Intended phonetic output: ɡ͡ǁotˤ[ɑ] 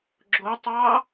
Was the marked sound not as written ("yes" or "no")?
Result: no